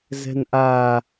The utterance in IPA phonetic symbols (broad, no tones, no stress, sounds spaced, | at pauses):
z ɛ̤ n ʔ a